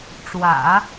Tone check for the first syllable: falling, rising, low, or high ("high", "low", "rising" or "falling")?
low